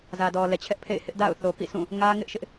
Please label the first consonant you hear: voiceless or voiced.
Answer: voiced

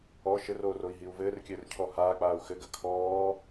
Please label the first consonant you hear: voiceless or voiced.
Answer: voiceless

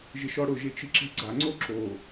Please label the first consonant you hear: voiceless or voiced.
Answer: voiced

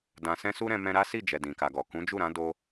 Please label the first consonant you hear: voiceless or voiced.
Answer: voiced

